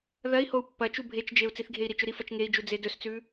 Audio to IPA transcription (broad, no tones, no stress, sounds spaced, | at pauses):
ð ɐ i̯ h o u̯ pː ɐ t͡ʃ u bʱ e t͡ʃ d͡ʒ e u̯ t͡s i θ ɡʱ e i̯ ɾ i t͡ʃ ɵ ɾ i f ɐ t͡ʃ ŋ e i̯ d͡ʒ u d͡z e d ɵ s t͡s ʉ